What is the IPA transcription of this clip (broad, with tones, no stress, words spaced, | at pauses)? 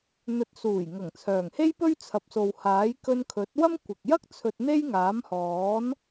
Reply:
n̪ɵ˨˥t̚suː˨˩jŋɐ˨˩ŋ t͡sʰœː˨˩ŋhe˥jpɵ˥ɥ t͡sʰɐ˨p̚so˨whaː˨˥j kɵ˧nkʰɵ˨˥t̚wɐ˥m kʷɪ˨k̚ jɐ˥k̚ t͡sʰɵ˧t̚ n̪e˥jŋaː˨˥mhɔː˨˥n